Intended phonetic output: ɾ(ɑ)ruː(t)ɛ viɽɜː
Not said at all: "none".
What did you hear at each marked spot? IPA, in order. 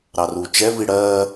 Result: ɑ, t͡ʃ

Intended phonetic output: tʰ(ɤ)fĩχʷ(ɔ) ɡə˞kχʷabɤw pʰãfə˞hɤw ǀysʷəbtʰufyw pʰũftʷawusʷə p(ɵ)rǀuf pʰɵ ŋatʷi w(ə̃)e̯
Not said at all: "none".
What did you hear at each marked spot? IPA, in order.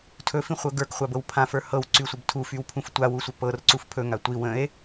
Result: ɵ, ɤ, ɤ, ə̃

